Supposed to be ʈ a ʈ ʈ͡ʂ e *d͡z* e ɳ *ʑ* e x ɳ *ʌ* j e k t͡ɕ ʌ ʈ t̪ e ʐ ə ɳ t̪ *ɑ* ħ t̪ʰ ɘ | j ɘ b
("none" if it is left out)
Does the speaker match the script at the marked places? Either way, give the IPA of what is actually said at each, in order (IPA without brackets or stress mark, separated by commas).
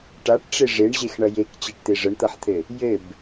ʐ, ʑ, ʌ, ʌ